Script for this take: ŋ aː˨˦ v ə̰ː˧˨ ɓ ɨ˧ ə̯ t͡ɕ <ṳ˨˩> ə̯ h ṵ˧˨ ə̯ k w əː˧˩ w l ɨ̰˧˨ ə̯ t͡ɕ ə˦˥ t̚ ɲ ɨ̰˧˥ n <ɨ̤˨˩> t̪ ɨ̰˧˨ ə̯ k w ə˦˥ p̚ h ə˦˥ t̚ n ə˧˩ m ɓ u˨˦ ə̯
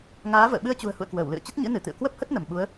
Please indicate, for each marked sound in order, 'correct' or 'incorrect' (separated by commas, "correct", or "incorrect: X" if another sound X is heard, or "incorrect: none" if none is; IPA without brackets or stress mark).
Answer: correct, incorrect: ɨ˧˩